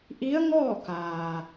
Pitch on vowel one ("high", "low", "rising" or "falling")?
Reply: rising